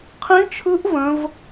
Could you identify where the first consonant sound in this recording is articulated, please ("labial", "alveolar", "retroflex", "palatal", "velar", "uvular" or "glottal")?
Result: uvular